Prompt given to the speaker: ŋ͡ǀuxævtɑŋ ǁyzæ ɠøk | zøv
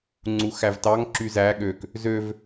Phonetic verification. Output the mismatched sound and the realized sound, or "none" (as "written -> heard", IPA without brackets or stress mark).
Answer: none